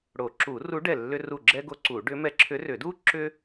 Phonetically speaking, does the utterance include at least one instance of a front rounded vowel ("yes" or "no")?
yes